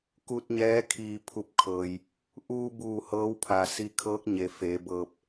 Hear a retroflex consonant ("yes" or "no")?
no